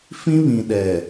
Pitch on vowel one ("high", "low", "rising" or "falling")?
high